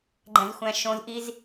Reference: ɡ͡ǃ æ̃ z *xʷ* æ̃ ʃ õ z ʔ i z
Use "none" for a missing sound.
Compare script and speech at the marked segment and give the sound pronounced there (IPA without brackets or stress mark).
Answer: xʷ